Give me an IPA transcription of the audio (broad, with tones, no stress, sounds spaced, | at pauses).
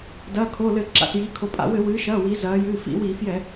d ɐː˩˧˩ kʰ o˩˧˩ l ɘ˧˩˧ ǁ a̰˩˧˩ s j iː˩˧ kʰ o˩˧ pʼ a̰˧˩˧ w ɘ˧˩˧ w ɨː˩˧ ʃ ɐː˩˧˩ w i˩˧ z ɐː˩˧ j ɨː˩˧˩ f ḭ˧˩˧ w iː˧˩˧ f j ɛ˧˩˧